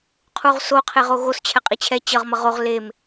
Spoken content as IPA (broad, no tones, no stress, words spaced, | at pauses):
qʰuʁso qʰeʁoɣos t͡ɕʰɛqʼit͡ɕʰɛ t͡ɕʌʁ mʌʁoʁ lem